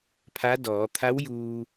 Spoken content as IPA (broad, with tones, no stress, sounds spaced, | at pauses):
pʰ a˧˥ d ɔː˩˧ t̪ʰ a˧˥ w j uː˧